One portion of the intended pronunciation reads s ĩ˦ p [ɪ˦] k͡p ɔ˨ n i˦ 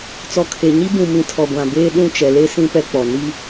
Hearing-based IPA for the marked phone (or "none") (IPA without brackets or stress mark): ɛ˦